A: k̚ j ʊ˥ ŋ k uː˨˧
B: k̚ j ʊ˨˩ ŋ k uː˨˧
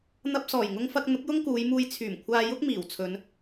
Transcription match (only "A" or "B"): A